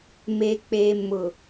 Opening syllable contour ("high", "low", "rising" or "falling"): low